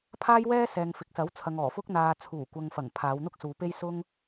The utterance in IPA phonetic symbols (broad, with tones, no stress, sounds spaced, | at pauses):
pʰ aː˥ j w ɛː˥ s ɛː˨ ŋ f ɪ˨˥ k̚ s ɐ˨˥ w t͡sʰ ɐ˨ ŋ ɔː˨˩ f ʊ˥ k̚ n̪ aː˨ t͡sʰ uː˨˩ kʷ ɐ˨ ŋ f ɐ˨˩ ŋ pʰ aː˨˧ w n̪ ʊ˥ k̚ s uː˨˧ p e˥ j s ʊ˥ ŋ